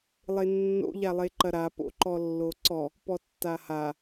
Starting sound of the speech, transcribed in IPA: lˠ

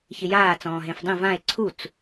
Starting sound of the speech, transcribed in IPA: ç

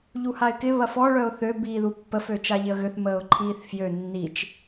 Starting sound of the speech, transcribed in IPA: ʎ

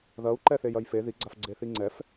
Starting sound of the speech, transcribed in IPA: ð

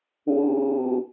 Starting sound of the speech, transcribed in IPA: w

